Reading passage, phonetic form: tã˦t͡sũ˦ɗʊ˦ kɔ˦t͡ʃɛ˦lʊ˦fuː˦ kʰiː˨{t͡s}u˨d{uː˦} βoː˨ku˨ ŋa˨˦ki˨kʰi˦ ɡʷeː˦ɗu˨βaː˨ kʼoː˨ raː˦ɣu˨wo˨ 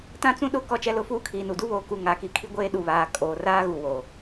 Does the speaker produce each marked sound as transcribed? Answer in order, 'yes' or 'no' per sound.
no, no

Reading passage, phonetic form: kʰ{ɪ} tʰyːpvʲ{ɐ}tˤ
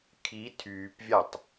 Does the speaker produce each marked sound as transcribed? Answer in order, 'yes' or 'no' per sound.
no, no

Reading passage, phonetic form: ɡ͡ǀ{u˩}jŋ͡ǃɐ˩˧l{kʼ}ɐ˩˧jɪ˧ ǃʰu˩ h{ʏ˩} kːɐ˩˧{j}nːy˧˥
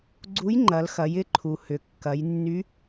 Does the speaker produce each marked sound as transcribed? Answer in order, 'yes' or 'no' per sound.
no, no, yes, yes

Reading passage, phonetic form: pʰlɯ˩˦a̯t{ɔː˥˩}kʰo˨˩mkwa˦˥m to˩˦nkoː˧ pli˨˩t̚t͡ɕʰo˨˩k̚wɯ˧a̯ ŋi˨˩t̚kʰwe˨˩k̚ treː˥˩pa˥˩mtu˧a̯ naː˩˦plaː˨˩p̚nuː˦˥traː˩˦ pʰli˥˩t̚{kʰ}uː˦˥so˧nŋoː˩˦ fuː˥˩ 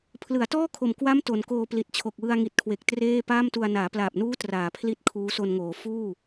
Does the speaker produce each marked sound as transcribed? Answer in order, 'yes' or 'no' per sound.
yes, yes

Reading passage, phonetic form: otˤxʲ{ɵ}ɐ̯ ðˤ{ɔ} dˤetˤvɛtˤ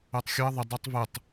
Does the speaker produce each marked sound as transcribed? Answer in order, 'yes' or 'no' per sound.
no, no

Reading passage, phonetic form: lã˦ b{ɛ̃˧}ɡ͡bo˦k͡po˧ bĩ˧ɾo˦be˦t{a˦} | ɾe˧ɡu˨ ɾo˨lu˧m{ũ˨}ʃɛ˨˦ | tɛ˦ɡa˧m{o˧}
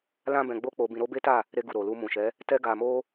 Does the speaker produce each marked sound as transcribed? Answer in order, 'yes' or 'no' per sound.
yes, no, yes, no

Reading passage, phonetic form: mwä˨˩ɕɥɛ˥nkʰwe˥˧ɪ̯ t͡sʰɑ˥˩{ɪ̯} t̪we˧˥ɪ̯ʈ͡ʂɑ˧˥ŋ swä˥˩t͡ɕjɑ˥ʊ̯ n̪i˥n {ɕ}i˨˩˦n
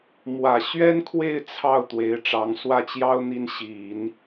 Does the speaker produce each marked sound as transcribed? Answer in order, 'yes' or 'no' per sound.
no, yes

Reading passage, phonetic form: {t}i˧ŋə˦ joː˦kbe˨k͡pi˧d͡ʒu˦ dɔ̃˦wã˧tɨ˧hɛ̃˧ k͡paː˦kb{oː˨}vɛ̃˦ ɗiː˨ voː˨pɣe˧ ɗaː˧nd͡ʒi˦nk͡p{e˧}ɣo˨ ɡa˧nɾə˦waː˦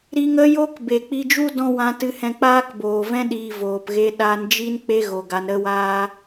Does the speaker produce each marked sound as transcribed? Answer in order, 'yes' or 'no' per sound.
no, yes, no

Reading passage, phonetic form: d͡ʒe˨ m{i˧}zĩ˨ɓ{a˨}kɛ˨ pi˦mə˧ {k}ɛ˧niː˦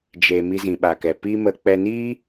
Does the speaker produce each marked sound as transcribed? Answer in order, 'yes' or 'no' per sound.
yes, yes, no

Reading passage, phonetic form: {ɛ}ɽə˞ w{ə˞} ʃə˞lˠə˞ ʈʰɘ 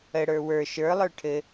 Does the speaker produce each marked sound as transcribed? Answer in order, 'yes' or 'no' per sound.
no, yes

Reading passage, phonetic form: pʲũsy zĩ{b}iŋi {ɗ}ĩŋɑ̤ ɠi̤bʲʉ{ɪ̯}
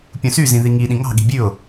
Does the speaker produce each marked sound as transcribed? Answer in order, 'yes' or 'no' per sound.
no, yes, no

